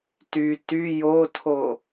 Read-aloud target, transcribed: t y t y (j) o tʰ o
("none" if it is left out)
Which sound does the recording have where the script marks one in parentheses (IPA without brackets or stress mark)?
j